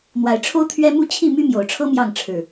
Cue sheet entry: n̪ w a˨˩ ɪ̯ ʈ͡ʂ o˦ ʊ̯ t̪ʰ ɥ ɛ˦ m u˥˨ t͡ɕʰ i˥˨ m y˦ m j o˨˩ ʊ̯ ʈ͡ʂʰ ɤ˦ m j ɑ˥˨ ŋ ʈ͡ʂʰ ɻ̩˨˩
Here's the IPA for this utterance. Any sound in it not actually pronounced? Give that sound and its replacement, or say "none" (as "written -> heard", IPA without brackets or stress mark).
ʈ͡ʂ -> ʈ͡ʂʰ